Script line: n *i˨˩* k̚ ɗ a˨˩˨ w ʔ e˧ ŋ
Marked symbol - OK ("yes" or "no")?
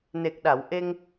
no